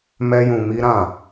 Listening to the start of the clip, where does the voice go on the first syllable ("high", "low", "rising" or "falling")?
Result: high